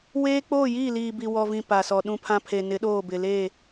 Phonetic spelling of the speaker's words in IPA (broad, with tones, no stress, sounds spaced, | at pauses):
w eː˦ k͡p oː˦˨ j iː˦˨ l iː˨ b i˨ w ɔ˨ v ĩ˨ p a˨ s ɔ˨ ɗ ũ˦ pʰ ã˦ pʰ e˨ n ɪ˨˦ ɗ oː˦˨ b ɪ˨ l e˦˨